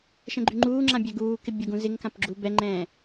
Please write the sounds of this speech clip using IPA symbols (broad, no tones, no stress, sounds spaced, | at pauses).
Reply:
ʃ ɛ̃ ɡ͡ǃ y ŋ͡ǃ uː ŋ͡ǁ ã bʲ ɛ ɡ uː k ɪ bʲ o ɡ ũ z ɪ ŋ k ã p ɡ͡ǁ u b ɛ ŋ͡ǃ ɛ̃ː